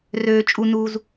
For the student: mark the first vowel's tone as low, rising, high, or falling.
low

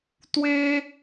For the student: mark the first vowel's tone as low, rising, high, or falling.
high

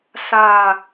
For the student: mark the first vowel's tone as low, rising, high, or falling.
falling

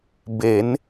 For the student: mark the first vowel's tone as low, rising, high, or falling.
rising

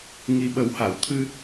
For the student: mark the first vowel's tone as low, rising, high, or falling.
low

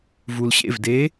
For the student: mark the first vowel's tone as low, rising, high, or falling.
low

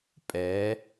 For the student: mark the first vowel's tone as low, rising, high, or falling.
rising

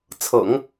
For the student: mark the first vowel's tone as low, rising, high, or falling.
low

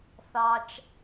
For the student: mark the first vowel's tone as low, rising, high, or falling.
low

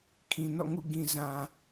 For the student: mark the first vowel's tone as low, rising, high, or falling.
low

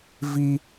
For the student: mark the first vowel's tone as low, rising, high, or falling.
high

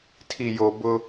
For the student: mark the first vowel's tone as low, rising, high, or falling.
low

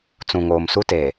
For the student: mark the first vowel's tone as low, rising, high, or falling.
low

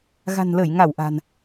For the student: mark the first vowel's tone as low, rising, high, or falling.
low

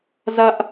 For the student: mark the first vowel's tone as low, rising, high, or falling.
high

